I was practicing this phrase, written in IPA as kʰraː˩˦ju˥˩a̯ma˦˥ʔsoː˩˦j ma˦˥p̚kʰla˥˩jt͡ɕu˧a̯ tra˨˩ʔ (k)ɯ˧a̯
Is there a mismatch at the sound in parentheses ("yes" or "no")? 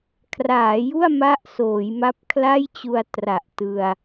yes